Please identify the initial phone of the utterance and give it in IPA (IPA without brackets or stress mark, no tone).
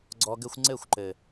ɡ͡ǀ